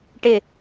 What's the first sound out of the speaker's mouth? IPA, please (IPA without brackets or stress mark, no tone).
ʈ